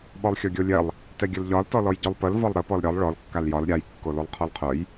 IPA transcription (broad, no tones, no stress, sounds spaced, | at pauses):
ɓ ɔ lˠ xʲ ɔ ɡʲ o lʲ ɛ lˠ | t ɛ ɡʲ ə l ʎ ɒ l t ɔ l ɔ j ɟ œ lˠ p ə l v ɒ lˠ ɾ ə p ɔ l ɾʲ ɒ lˠ ɭ ɔ l kː a l j ɒ l ɾʲ a j kː o l o lˠ qʰ ɔ l qʰ œ j